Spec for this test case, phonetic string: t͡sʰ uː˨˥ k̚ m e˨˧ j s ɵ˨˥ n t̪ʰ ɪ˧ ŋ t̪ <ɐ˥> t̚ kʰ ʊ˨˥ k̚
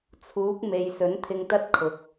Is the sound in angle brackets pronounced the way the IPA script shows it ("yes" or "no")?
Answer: yes